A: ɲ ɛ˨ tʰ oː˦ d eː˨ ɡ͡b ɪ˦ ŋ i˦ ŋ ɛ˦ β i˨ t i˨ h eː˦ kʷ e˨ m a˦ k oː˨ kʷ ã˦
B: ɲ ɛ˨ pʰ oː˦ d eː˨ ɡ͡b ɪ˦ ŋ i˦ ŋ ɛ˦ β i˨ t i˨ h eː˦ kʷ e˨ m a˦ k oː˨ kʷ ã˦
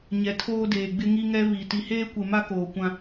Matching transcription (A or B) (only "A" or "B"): A